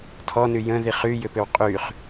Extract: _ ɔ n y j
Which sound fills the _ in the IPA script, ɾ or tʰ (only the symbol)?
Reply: tʰ